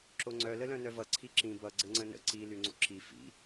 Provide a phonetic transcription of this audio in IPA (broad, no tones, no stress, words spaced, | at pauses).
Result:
ǁoŋ͡ǀœ ləlœ̃nœvʌ ǀʰiǁĩ bʌ ɡ͡ǀɘŋ͡ǀə̃nə̰ ǀi lyŋ͡ǀo̰ǁi fḭ